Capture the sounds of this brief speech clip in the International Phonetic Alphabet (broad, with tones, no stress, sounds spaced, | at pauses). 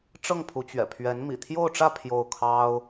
ʈ͡ʂ ɤ˥˩ ŋ pʰ u˧˥ t͡ɕ ɥ ɛ̰˨˩ pʰ ɥ ɛ˧˥ n m ḭ˨˩ t̪ʰ j o˥˧ ʊ̯ ʈ͡ʂ ä˥˧ pʰ j o˥˩ ʊ̯ kʰ ɑ˥ ʊ̯